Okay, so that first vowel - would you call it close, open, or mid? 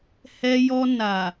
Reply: mid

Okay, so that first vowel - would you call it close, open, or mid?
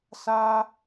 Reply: open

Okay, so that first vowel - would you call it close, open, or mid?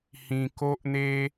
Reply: close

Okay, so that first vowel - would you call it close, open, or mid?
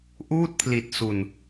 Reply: close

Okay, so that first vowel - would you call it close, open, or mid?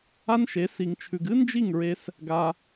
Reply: open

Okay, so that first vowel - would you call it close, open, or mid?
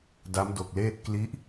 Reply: open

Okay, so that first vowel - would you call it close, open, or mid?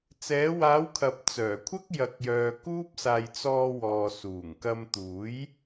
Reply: mid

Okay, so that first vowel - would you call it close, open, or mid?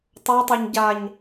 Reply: mid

